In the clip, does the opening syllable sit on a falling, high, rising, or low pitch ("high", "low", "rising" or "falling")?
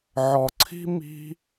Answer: low